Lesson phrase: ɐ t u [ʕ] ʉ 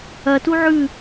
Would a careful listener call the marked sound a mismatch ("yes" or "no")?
no